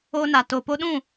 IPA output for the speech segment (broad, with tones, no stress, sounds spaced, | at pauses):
o˧ n a˨ t oː˨ p o˧ ɗ ũ˦˨